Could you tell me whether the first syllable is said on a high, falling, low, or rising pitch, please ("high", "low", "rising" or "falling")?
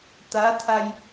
rising